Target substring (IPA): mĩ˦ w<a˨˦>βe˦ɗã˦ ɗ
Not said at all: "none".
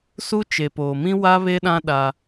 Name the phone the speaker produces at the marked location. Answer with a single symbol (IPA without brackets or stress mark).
a˦